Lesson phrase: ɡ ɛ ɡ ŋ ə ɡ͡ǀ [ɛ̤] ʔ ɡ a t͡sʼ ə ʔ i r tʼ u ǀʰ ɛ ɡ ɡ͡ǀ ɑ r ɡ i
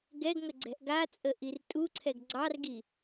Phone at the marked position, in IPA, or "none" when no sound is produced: ɛ̤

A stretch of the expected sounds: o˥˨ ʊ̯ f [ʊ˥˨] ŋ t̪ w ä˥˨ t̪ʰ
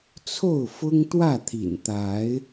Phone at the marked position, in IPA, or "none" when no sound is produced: ʊ˦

